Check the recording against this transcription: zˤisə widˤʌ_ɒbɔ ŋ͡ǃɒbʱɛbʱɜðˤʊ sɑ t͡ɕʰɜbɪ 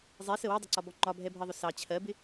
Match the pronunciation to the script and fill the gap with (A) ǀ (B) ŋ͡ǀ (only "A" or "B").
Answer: A